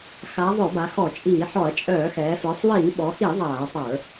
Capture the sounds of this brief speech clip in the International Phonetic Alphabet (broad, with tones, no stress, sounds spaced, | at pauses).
x a˩˧ ðˤ œ˧˩˧ b a˩˧ x ɔ˧˩˧ t͡ʃʼ iː˧˩˧ ħ ɔ˧˩˧ ɐ̯ t͡ʃʼ œː˧˩˧ x ɛː˩˧ f ə˞˩˧ sˤ w iː˧˩˧ ɓ ɔ˩˧ x i˧˩˧ ðˤ aː˧˩˧ tˤ ə˞˧˩˧